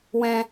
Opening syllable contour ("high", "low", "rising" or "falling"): high